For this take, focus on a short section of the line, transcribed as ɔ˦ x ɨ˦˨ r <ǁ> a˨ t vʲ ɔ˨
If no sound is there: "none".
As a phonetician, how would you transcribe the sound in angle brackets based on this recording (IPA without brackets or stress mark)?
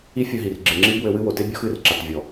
ǁ